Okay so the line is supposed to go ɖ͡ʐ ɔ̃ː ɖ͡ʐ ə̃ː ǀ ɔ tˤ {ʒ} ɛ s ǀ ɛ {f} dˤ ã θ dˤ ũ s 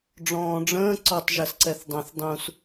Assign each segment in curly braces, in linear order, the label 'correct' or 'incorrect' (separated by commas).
correct, incorrect